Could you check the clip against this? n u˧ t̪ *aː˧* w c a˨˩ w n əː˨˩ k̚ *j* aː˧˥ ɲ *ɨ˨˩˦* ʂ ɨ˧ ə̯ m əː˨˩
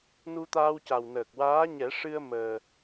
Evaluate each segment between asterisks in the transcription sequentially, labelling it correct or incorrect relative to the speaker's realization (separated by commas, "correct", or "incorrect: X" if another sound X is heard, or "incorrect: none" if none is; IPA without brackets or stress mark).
correct, incorrect: w, incorrect: ɛ˨˩˦